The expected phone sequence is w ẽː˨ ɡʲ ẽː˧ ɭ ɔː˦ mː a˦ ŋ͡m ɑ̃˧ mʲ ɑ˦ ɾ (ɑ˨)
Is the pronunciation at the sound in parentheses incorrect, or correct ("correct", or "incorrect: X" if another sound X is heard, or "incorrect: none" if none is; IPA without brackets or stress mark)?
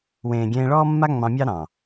incorrect: ɑ̃˨